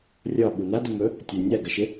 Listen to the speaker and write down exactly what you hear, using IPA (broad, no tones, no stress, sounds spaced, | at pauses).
rʲ ɒ ɓ u n a d o m ɵ | tʲ ɐ nʲ a ɡ ɐ ʃ ɪ